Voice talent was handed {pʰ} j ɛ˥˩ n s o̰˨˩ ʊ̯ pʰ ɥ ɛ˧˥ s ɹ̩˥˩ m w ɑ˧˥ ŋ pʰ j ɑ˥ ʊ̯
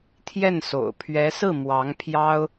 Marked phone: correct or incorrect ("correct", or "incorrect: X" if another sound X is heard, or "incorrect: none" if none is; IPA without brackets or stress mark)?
incorrect: t̪ʰ